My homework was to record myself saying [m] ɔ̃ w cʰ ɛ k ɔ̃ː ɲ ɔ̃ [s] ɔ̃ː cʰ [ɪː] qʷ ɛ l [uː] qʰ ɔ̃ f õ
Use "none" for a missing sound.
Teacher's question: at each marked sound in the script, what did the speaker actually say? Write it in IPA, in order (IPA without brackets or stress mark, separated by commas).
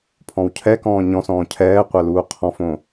pʰ, s, ɛː, uː